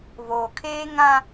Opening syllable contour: low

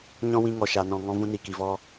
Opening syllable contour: high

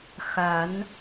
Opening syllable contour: rising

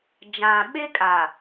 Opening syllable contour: low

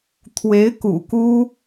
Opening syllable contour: rising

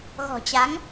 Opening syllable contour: low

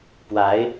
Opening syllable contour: rising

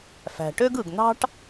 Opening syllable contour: low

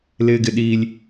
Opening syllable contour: high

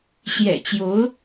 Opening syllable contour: low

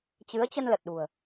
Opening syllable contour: rising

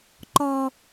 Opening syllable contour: low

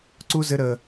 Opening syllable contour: high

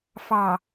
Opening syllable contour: low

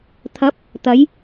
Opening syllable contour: rising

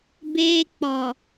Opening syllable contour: high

